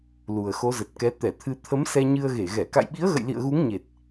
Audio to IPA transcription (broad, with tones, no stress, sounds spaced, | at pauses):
l u˨˩ ə̯ x o˨˦ z ə˨˩ t̚ k ɛ˨˦ t̪ ɛ˧˩ t̪ʰ ɨ˧ t̪ʰ ə˨˦ m s ɛ˧ ɲ ɨ˧ ə̯ ɣ e˧˩ ɣ ɛ˧˩ k a̰˧˨ j ɓ i˨˦ ə̯ ɣ ə̰˧˨ j l ḭ˧˨ ə̯ ɣ u˨˦ ŋ ɲ e˨˩ t̚